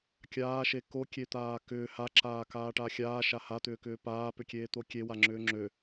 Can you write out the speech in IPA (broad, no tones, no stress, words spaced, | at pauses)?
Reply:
kʲaːʃe kokʲet̪aː kʏː haǁaːkaːʈa xʲaːʃa hat̪ʏːkʏː paːpʏkʲeːt̪o kʲewaŋ͡ǁʏː ŋ͡ǁø